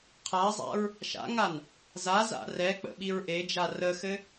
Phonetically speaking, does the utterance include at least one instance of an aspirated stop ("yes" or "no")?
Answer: yes